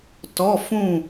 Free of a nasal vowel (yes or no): no